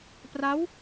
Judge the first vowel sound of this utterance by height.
low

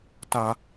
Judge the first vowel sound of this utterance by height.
low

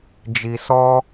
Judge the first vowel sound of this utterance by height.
high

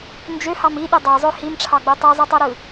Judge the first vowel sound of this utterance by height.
mid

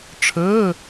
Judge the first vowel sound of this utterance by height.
mid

